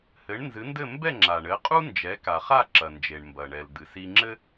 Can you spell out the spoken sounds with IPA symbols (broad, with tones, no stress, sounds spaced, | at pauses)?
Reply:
h ɘ˩˥ ɳ n z ɨ˩˥ n d ɘ˥˩ m b ɛ˥˩ ŋ͡ǁ a˩ ɳ ɘ˩˥ qʼ u˥ n d͡ʒ ɛ˩˥ k a˩ χ a˥˩ ǁ ɐ˩ n d͡ʒ e˩ ɳ m b ɐ˩ ɳ ɛ˩ l d̪ ɨ˩ s i˧ ŋ͡ǁ ɘ˥